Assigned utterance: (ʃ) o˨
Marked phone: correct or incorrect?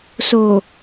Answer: incorrect